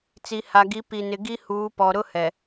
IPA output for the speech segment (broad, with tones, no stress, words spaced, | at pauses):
t͡si˨ha˨ɡi˨˦ pi˨nɪ˨ ɡi˦huː˨˦pɔ˨ ɾʊ˦hɛ˨